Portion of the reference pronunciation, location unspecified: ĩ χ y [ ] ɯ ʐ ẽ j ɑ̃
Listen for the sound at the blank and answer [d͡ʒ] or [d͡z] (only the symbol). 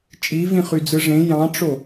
d͡z